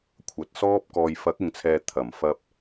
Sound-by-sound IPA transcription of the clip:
kʷʰ ɐ˨ t̚ s ɔː˥ p̚ k ɔː˨ j f ɐ˨˥ k̚ ɪ˨ ŋ t͡sʰ ɛː˨ t̪ʰ ɐ˨˩ m f ɐ˧ p̚

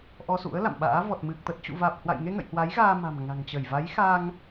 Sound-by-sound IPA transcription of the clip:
ʔ ɔ˧ s ṵ˧˥ ə̯ l a̰˧˨ m ɓ a̰ː˧˥ v ɔ˨˩ t̚ m ɨ˨˩ k̚ t̪ ə˨˩ t̚ t͡ɕ ṵ˧˨ v aː˨˩ p̚ h w a̰˧˨ j ŋ e˧ ŋ ə̰˧˨ j h w a˨˦ j ɣ aː˧ m a̤˨˩ m ŋ a̤˨˩ ŋ t͡ɕ ə˧˩ j v a˨˦ j x a˧ ŋ

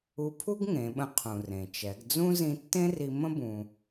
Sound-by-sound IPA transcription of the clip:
u˧ pʰ u˥ ɡ ŋ ẽ˩˧ ɓ ə̃˧ qʰ ũ˩ r ẽ˩ t͡ʃ ɛ˩˧ ɡ d͡z ũ˥ z ĩ˧ tː ẽ˥ r i˧ m ə̃˥ b ũ˧

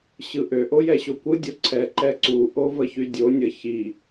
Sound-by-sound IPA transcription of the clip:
ɕ ɯ ʔ ø ʔ o j ɛ ɕ o kʷ ɯ dʲ o ǀʰ ɛ ǃ ɛ ǀ u ʔ o v ə ç y dʲ o nʲ ə ç i

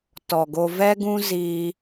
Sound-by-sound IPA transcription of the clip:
t ɔ˨ ɡ o˧ v ɛ˦ ɡ ũ˦ z iː˧

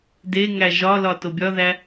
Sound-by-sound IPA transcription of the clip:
d e ŋ æ ʒ ɒ l ɒ t o bʲ ɒ ð æ

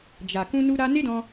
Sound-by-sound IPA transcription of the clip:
d͡ʒ a˨ k ũ˧ n u˧ ɾ a˧ n e˦ d ɔ̃˧

